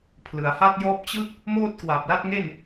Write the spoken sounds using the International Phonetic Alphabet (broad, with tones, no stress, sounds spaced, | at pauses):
pʰ l ɯ˩˦ a̯ h a˥˩ t̚ j ɔː˥˩ p̚ t͡ɕ ɯ˥˩ k̚ | m oː˥˩ t̚ k w a˨˩ p̚ l a˥˩ t̚ ŋ e˥˩ n